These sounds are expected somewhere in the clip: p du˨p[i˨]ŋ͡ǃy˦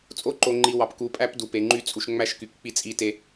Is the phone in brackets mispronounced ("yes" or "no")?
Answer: yes